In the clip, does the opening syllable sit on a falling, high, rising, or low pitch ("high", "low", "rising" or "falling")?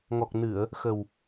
low